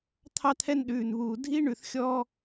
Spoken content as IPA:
t̪ʰ ɑ˦ t̪ʰ ɛ˦ n ɗ ʉː˨ n β uː˨ dʱ i˦ ɳ ʉ˨ θ xʲ ɔ˦

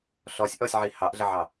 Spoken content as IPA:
ɬ ɔ sʲ ʔ ɔ sʲ ʕ i h ɑ ʔ ɮ ə ʕ ɑ

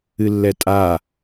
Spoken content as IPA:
ɨ lː ɛ tʼ a

